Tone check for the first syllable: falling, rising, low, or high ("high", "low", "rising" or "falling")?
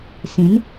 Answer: rising